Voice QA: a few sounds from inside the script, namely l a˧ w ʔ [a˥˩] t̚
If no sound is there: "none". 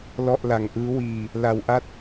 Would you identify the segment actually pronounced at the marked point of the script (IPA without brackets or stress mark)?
a˥˩